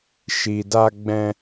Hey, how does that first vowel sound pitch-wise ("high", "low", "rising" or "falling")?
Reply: low